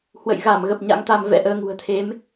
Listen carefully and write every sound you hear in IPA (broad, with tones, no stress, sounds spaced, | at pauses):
h w ə̰˧˨ j ɣ a˧˩ m ɣ ə˨˩ p̚ ɲ a̰˧˥ ŋ t̪ a˧ m v ɛ̰˧˥ ʔ əː˨˦ ŋ ṳ˨˩ ə̯ t̪ʰ e˨˦ m